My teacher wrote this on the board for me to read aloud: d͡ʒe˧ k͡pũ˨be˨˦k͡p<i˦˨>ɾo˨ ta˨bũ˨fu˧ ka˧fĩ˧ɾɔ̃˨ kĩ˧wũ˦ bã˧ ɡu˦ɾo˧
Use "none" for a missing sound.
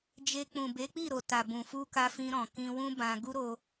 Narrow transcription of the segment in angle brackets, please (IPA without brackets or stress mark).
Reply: i˦˨